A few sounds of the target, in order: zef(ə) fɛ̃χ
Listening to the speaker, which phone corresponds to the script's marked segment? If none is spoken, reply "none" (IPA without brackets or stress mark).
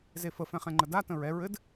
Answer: ə